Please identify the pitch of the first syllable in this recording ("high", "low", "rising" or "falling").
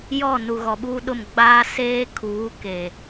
falling